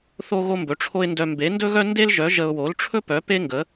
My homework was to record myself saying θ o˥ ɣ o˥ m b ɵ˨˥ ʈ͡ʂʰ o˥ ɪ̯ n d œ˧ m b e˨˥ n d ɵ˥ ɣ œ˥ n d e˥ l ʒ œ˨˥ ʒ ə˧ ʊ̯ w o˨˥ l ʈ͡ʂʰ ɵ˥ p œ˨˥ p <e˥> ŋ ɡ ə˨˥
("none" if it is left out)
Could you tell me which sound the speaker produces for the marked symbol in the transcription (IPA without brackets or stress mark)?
e˥